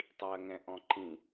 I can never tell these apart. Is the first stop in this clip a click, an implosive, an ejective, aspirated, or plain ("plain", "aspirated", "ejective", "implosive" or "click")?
plain